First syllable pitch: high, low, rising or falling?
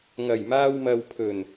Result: low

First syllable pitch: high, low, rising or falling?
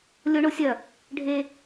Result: high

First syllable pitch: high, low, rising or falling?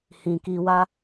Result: low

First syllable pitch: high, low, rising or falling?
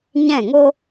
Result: falling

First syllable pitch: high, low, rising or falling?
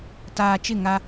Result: low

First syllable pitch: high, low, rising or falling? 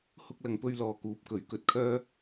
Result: high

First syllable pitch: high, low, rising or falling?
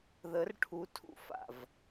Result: rising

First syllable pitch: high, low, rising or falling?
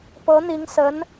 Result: rising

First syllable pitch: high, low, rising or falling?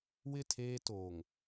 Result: falling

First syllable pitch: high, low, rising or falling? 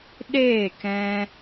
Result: falling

